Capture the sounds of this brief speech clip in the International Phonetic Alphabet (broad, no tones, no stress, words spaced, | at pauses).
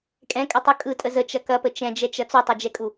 kʼɛ̃kʼɐtˤu kʼɯtʼə zət͡ʃɐ kɐpə t͡ʃɛ̃d͡ʒɛt͡ʃɐ t͡sutˤud͡ʒɛkʼu